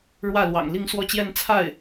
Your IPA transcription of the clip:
ɻ w ä˥˩ l w ɑ̰˨˩ ŋ l i˥˧ ŋ s w ɔ˥˧ t͡ɕ j ɛ˥˧ n t͡sʰ a˥˩ ɪ̯

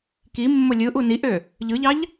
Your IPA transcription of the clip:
k i mː o lʲ ɯ ʔ u n i ʔ ø | ʎ ɯ ʎ ɑ ʎ

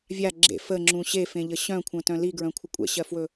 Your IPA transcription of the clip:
vʲ a ɡ͡ǁ ḛ f ə ŋ͡ǁ ũ ɕ e f ẽ ʎ ə ɕ œ̃ kʷʰ œ̃ t œ̃ l i ɡ ɹ œ̃ kʷʰ ə kʷʼ ɛ̰ ɕ ɜ f w ɵ

